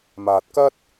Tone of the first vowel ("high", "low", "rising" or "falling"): low